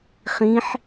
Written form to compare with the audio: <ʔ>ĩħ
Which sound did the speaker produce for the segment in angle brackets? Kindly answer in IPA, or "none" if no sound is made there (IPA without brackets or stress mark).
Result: χ